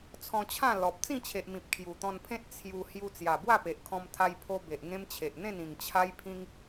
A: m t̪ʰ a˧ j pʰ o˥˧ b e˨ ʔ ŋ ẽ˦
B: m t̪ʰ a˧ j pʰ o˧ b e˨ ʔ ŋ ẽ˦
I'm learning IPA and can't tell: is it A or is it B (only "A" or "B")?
B